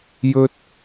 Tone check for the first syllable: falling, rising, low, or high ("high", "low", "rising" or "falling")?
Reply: high